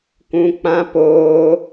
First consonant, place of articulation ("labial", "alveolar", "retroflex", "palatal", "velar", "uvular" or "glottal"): velar